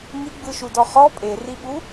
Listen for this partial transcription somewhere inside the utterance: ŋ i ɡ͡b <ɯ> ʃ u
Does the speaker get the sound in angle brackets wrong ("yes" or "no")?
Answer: no